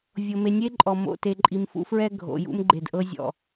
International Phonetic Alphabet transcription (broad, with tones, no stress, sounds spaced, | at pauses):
vʲ o˨ m e˨ nʲ e˦ ǃʼ ɔ˨ m o̰˨ t e˨ ǃʼ i˨ m f ṵ˦ f ɹ ɛ˦ ɡʱ o̰˨ j ṵ˦ m ɡ͡ǃ e˨ d ʔ ɤ˦ zʲ ɔ̰˨